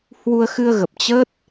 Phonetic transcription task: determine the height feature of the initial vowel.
high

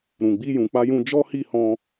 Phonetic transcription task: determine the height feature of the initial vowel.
high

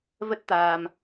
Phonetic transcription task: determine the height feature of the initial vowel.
mid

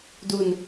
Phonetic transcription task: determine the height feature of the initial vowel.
high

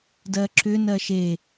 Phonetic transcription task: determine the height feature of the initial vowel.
mid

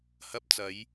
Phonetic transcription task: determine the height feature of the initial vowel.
low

